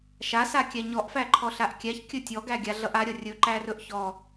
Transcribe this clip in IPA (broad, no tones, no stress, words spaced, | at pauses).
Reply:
ʃa sakʲæɲɔʔ fæǃʰɔɬaʔkʲæç kʲɵtʲɔ ɡæɡʲaɮʌʔa ɾʲʌrʲɵ ǃærɵʔçɔ